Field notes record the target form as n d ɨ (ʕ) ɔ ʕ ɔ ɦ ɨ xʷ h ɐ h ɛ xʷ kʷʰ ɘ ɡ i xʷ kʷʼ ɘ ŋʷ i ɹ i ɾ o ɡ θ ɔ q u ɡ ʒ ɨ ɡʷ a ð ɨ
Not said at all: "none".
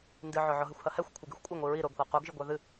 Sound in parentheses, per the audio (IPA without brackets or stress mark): ʕ